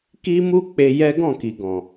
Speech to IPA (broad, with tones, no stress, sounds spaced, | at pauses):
k i˦ m u˦ k͡p e˧ j ɛ˦ ɡ ɔ̃˦˨ k i˨ ɡ ɔ̃˨